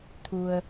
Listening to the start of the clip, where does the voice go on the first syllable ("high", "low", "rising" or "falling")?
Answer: low